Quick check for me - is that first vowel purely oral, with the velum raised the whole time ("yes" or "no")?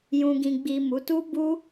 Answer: no